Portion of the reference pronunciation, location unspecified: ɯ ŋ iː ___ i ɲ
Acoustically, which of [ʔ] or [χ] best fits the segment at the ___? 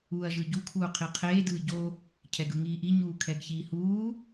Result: ʔ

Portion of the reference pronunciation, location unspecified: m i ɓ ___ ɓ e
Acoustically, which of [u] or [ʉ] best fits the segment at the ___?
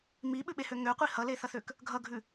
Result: ʉ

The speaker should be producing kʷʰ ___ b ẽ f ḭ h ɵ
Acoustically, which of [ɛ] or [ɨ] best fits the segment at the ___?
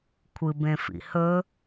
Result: ɨ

